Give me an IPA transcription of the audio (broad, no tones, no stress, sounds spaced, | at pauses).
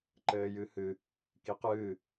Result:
ǃ ɘː j ɨ h ɨ | k i q ɨː